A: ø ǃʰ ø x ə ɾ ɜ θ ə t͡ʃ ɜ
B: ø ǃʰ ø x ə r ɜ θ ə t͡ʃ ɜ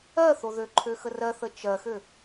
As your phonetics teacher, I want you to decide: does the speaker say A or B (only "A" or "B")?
B